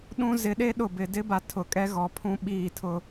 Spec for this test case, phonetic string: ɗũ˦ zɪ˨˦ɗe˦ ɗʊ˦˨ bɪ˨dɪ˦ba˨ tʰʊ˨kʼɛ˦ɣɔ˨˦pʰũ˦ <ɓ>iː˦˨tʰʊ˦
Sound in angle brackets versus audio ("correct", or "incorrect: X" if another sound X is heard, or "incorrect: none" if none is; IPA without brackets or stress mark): correct